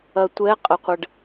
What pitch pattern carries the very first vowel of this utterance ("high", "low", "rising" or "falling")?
low